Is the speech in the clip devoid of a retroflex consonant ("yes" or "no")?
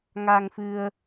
yes